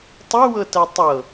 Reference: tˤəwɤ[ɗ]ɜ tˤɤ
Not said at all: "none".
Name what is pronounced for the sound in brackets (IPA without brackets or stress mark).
t